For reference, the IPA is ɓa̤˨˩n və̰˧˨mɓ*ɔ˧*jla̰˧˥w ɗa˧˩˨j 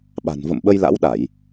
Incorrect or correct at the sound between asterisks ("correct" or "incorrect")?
incorrect